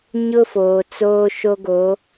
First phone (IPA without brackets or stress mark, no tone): ɲ